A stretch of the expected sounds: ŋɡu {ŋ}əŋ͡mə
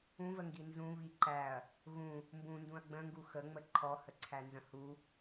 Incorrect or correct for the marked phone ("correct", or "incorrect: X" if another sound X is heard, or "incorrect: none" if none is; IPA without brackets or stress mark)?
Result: incorrect: x